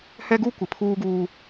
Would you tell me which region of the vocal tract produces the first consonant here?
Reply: throat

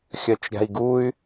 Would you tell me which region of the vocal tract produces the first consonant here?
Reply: velum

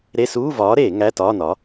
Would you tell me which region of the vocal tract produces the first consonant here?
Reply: tongue tip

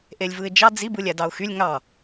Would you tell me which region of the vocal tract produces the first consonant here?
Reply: throat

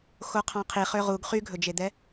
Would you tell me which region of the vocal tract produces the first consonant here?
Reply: velum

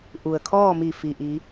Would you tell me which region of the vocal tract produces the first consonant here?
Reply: throat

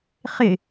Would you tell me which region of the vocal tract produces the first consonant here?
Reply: uvula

